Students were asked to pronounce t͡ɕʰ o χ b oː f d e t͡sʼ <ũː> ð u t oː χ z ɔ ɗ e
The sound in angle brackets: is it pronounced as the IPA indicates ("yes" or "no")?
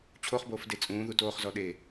yes